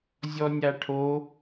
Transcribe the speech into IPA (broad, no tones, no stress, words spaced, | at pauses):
zʲɔnʲaʈʰo